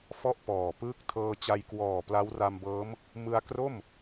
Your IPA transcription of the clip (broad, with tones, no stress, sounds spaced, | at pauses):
f ɔ˥˩ ʔ p ɔː˨˩ p ɯː˦˥ k̚ tʰ ɤː˧ t͡ɕ a˧ j k w ɔː˨˩ p l a˦˥ w r a˧ m b ɤː˦˥ m | m ɯ˧ a̯ k r o˥˩ m